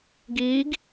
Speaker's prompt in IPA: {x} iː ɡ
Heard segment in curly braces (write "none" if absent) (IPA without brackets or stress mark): ɡ